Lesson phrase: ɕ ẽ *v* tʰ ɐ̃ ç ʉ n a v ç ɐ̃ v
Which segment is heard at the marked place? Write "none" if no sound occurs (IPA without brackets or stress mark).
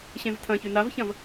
v